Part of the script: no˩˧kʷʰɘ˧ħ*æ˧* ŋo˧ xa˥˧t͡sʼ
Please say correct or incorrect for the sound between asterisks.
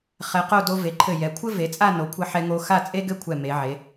incorrect